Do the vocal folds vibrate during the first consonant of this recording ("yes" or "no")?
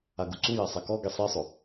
yes